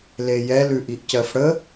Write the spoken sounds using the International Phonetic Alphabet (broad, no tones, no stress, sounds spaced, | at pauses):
l e j ɛ l ʉ ʔ i ʔ c ɜ f ɽ ə